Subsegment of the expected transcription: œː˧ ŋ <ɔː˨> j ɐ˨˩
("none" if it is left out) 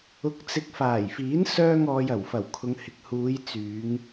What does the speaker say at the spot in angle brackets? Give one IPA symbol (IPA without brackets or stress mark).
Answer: ɔː˨